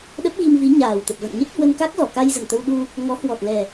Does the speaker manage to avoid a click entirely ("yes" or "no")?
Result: yes